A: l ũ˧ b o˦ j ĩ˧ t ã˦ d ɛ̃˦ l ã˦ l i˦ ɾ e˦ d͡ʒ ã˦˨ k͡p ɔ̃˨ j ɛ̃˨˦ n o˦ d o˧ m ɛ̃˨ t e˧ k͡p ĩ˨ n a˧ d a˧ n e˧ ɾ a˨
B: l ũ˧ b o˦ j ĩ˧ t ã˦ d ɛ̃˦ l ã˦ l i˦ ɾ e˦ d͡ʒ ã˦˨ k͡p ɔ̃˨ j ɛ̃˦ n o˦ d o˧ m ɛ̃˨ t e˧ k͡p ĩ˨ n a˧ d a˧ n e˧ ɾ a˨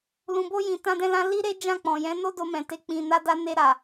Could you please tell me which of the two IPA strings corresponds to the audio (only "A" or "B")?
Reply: A